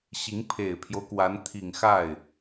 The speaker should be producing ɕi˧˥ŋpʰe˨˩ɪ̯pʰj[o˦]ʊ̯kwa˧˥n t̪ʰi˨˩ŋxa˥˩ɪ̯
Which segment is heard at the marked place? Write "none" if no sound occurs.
o˦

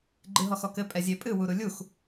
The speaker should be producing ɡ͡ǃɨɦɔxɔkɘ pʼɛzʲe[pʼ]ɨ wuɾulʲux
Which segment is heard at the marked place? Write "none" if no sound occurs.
pʼ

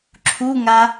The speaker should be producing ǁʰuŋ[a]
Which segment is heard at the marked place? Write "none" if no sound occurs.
a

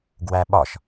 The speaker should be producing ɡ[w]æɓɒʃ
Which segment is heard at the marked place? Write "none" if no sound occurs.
w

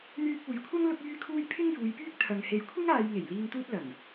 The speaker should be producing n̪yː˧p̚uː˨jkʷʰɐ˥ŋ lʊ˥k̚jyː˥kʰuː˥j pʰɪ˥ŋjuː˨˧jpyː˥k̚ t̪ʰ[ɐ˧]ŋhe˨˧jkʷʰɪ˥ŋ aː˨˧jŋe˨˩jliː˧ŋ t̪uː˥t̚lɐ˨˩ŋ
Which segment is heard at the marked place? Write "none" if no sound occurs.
ɐ˨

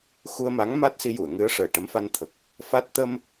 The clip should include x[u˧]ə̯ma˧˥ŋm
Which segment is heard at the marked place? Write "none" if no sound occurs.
u˧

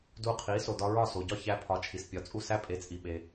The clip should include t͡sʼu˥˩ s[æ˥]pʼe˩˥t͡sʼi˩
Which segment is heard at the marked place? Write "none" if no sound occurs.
æ˥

